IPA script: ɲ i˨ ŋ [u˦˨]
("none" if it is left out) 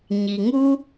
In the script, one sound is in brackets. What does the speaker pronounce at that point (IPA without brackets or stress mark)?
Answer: u˦